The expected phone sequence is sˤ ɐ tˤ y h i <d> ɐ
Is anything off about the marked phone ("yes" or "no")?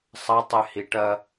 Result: yes